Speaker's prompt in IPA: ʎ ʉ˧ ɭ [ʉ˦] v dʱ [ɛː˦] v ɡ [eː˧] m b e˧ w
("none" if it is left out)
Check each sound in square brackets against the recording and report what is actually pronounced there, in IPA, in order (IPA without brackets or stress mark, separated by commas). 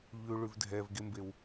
ʉ˧, ɛː˧, e˧